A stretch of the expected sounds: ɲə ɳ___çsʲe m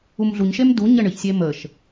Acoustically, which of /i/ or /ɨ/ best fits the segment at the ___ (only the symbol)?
ɨ